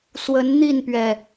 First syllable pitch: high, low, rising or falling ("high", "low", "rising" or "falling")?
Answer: rising